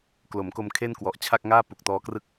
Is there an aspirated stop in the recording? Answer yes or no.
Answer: yes